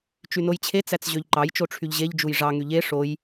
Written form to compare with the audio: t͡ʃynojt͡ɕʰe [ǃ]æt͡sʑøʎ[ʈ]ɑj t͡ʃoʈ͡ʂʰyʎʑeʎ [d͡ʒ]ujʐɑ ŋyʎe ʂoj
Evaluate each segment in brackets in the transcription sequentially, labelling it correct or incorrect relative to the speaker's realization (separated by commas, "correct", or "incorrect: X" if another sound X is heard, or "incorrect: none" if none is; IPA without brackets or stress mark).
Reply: incorrect: t͡s, incorrect: ǃ, correct